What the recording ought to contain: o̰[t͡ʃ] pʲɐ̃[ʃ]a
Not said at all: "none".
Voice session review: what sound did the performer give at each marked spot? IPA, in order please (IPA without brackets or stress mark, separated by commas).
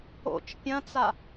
t͡ʃ, t͡s